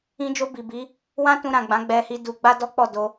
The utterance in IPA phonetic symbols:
ĩ˧ d͡ʒ o˧ b i˨ b i˨˦ | w ã˦ t ũ˧ ɾ ã˨ ɡ͡b ã˨˦ ɡ͡b ɛ˧ h i˧ d u˧ ɡ͡b a˦ d ɔ˦ k͡p ɔ˦˨ d o˧

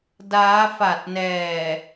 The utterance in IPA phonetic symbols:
d aː˦˥ f a˨˩ t̚ n ɛː˨˩

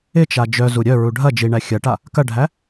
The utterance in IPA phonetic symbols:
ɪ t͡ʃ a d͡ʒ œ z u ɾʲ œ ɹ u ɖʱ ɐ d͡ʒ i ɳ æ xʲ ɐ ʈ a | k ɐ ɖʱ æ

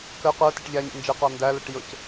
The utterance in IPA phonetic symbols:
k ə q ə˞ t i ʈ ʎ æ ɲ ḭ n d͡ʒ ɛ q ɑ n d æ l ə ʈ j ʊ c

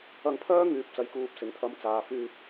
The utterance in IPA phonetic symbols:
ɐ˧ ŋ pʰ œː˥ ŋ yː˨˥ p̚ t͡s ɐ˨ j k uː˧ p̚ s ɪ˨ ŋ t̪ʰ ɐ˧ m t͡s aː˨ f yː˧ p̚

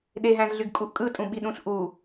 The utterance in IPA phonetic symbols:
ɗ e ɦ æ̃ z ɮ y ɡ kʼ u ʔ kʼ ɯ tʼ ũ ɓ i ɗ ũ ɬ ʔ u

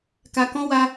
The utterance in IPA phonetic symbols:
k a˧ k ɔ̃˦ w a˧

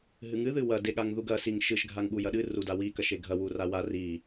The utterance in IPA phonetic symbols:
ɦ ɨ ŋ ɨ ð ɨ w ɐ d e ɠ a ŋ ð u ɡ ɐ s i ŋ ʃ ɨ ʃ ɡʱ a ŋ ɠ u j ɐ ɗ ɨ r u d a w i k ɐ ʃ e ɡʱ ɐ w u r a w a r i

